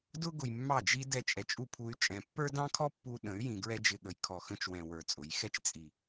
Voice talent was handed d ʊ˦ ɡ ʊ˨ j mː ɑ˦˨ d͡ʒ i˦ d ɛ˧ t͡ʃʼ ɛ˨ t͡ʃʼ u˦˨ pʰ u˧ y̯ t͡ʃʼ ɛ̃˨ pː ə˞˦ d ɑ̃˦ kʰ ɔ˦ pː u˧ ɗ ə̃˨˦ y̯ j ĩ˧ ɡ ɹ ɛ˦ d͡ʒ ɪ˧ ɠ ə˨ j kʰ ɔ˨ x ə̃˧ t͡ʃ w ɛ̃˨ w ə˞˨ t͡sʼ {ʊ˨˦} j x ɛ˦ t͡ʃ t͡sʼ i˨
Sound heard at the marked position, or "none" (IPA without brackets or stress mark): ʊ˨˦